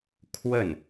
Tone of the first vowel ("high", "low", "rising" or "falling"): falling